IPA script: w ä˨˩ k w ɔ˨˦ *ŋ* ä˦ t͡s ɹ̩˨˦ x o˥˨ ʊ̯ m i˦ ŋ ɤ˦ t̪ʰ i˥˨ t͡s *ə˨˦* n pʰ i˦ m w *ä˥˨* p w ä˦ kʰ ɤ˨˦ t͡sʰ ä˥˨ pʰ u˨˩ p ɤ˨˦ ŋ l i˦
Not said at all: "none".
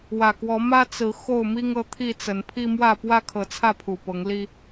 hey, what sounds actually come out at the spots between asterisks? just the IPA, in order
m, ə˨˦, ä˥˨

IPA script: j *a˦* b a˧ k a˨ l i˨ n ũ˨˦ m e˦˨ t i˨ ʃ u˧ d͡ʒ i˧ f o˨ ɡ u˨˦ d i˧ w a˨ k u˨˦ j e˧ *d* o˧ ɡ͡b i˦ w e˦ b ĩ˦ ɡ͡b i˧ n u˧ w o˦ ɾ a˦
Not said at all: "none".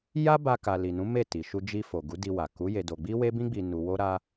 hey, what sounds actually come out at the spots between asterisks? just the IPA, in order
a˦, d

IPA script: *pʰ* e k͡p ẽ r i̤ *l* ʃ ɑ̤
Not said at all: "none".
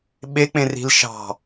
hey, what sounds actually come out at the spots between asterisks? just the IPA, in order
ɓ, l

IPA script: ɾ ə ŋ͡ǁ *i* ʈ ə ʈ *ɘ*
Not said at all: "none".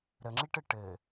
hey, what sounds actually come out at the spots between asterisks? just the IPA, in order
i, ɘ

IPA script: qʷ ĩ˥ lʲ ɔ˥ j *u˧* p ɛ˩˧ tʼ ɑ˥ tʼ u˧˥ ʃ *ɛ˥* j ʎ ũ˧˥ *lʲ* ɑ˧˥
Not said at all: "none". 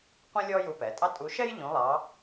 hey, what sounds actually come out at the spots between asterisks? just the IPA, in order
u˧, ɛ˥, lˠ

